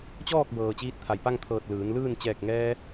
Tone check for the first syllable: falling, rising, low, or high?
falling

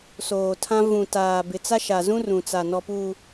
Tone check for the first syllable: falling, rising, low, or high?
low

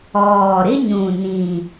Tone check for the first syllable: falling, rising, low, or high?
low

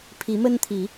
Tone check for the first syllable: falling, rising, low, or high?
rising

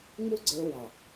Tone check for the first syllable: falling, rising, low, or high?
high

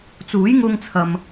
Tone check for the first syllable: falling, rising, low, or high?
rising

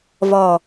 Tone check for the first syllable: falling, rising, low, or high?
low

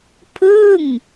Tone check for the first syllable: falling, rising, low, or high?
falling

